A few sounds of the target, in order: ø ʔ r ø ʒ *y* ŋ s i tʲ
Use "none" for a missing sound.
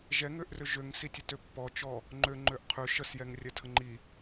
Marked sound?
ø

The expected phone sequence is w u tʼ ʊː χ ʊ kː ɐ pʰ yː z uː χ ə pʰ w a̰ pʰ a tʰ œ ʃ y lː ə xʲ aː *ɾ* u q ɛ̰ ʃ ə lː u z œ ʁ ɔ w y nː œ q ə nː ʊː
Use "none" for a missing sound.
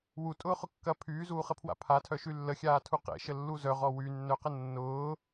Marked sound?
tʰ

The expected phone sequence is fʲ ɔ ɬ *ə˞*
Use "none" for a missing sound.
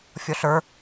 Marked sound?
ə˞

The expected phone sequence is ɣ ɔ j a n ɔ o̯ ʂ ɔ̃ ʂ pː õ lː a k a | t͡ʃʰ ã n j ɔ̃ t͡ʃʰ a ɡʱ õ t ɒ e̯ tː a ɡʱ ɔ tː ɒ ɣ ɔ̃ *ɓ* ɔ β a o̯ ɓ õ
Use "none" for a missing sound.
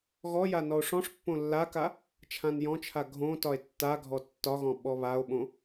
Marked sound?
ɓ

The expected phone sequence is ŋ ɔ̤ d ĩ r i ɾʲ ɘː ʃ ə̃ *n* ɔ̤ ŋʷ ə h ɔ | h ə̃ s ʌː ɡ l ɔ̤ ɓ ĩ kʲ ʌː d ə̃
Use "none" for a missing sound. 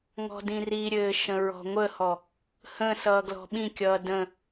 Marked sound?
ɹ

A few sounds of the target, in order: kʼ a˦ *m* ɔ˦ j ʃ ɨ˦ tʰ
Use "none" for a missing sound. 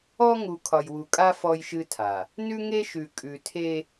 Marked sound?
f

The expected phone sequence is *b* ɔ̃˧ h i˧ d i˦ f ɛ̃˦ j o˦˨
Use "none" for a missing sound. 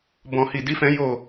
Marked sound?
b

